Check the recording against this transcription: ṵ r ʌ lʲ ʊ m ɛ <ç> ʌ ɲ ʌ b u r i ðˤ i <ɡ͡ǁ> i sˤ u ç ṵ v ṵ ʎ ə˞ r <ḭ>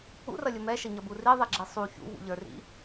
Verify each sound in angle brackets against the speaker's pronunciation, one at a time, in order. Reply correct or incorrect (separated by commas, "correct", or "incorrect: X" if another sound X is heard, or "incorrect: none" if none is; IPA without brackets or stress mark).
incorrect: ʃ, correct, correct